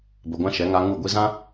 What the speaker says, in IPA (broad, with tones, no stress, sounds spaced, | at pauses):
b ə˧ ɡʷ ã˦ ʃ ɛ˨˦ ŋ a˧ ŋ u˦˨ ɡʷ i˧ z ã˦